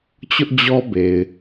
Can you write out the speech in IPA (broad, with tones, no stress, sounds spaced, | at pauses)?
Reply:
t͡ɕ ʊ˦ ʔ d͡ʑ ɔ˦ b e˨ ɪ̯